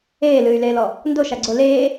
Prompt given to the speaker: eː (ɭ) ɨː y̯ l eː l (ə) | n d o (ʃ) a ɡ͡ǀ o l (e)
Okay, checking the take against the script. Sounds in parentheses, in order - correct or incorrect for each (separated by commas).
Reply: incorrect, incorrect, correct, incorrect